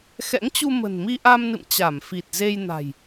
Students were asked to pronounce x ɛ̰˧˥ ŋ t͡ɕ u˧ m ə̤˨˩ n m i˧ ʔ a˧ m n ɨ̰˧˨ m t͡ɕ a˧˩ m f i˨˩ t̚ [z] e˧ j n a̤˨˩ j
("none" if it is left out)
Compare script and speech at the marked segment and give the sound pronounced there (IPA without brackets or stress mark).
z